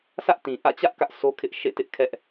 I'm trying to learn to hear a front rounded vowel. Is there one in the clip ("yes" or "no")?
no